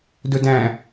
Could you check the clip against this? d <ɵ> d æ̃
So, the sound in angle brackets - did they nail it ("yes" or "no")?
yes